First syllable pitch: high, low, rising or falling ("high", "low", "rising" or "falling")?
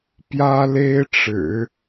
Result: high